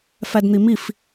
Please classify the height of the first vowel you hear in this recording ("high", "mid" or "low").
low